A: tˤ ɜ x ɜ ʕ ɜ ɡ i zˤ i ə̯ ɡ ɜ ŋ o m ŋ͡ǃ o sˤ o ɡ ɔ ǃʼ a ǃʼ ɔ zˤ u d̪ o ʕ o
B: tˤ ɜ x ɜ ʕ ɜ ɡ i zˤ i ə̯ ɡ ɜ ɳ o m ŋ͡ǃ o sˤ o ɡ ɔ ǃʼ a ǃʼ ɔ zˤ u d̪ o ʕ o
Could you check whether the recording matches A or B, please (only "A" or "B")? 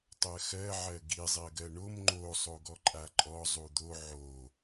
B